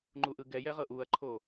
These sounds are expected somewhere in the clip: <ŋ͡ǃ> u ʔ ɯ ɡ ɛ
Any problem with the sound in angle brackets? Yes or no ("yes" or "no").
no